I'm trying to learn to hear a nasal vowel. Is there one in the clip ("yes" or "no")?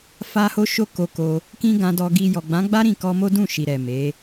yes